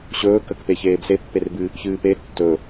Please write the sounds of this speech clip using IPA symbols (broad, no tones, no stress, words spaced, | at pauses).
ɕɵːkəkpe çeːbsepːerbɨ | çɨːpe tːɵ